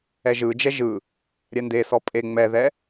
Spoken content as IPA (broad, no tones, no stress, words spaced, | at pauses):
ɛʒɯd͡ʒɛ ʒɯ | ɾʲɛndesɔ pʼe ŋ͡mɛðɛ